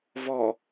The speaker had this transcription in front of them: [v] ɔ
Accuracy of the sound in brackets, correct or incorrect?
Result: correct